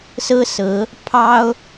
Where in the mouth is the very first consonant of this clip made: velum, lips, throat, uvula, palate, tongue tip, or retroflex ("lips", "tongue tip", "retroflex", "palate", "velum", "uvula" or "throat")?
tongue tip